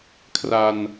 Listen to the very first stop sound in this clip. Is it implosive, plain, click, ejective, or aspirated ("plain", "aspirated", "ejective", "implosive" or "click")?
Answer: aspirated